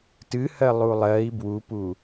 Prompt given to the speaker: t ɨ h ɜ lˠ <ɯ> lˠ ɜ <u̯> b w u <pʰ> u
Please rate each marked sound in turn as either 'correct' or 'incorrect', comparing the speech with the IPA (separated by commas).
incorrect, incorrect, incorrect